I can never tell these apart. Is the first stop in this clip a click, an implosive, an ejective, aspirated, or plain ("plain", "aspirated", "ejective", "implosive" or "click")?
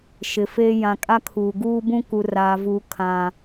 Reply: ejective